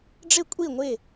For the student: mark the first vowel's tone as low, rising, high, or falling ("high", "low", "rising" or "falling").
falling